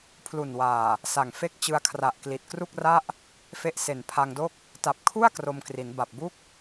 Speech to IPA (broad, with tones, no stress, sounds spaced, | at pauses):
pʰ l u˨˩ n w aː˨˩ | s a˨˩ ŋ f e˥˩ k̚ t͡ɕ ɯ˧ a̯ kʰ r a˨˩ ʔ k l i˨˩ t̚ k r u˥˩ k̚ r a˥˩ ʔ | f e˥˩ ʔ s e˨˩ n pʰ a˧ ŋ d o˥˩ k̚ | t a˨˩ p̚ kʰ u˥˩ a̯ k r o˧ m k r i˩˦ n b a˨˩ p̚ b u˥˩ k̚